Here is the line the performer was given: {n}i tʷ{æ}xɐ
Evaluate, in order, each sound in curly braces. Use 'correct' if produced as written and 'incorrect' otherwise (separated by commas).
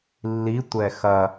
incorrect, incorrect